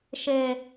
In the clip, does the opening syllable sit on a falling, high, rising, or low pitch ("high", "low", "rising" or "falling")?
low